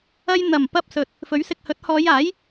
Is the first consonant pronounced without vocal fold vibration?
no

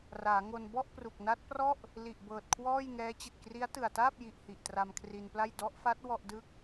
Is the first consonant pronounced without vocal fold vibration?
no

